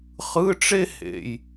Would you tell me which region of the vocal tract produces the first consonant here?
uvula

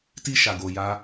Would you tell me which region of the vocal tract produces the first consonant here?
tongue tip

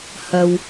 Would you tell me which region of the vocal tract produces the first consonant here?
throat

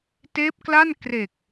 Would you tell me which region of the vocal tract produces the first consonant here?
tongue tip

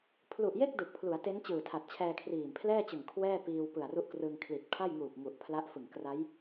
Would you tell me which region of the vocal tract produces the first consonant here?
lips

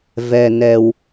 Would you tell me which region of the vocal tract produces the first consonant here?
lips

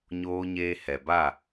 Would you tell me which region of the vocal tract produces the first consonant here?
palate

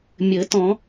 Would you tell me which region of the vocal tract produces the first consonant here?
lips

